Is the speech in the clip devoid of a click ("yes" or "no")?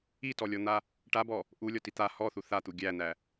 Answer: yes